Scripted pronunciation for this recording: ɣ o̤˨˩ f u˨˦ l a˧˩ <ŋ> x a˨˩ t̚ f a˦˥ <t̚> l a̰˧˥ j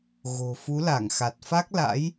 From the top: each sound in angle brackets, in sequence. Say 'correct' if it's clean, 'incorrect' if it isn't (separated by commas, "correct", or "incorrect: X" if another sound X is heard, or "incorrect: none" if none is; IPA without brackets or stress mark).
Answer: correct, incorrect: k̚